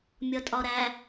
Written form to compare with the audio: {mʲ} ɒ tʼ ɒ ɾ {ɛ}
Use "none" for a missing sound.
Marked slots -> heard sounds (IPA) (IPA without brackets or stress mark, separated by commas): mʲ, æ